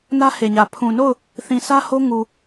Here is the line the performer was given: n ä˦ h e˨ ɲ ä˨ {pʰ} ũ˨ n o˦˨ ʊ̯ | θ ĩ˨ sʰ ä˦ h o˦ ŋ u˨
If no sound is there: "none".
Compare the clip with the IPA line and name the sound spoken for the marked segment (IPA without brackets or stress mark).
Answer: pʰ